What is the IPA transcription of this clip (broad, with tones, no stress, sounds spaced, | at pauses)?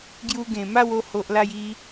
ɡ j u˧ ɡ ẽ˨˩ m a˥˧ w o˧ h o˨ ʔ l a˧ j i˧